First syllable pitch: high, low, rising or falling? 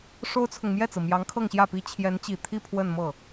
high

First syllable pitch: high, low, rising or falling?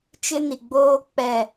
high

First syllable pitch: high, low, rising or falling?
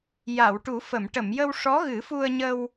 low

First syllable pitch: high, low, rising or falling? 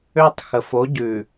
high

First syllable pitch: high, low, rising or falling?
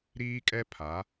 high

